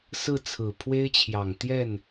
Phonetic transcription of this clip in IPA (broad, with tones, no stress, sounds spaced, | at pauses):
s ɹ̩˥˩ t͡sʰ ɹ̩˨˩ pʰ w e˥ ɪ̯ t͡ɕʰ j ɑ˨˩ ŋ t̪ j ɛ˥˩ n